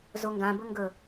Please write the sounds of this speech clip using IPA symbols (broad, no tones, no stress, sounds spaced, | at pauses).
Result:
z o ŋ ɡ ã b ɵ ŋ ɡ ɵ